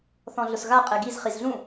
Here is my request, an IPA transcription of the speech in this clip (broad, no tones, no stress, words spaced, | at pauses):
θɔ̃ɮʊsɣa qʼɛɡiz χizɮũ